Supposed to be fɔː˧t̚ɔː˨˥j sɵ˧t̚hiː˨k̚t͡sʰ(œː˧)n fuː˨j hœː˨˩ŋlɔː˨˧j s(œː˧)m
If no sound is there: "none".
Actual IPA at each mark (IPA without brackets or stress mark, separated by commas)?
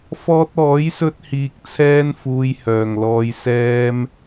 ɛː˧, ɛː˧